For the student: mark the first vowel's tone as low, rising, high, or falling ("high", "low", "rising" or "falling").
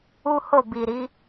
high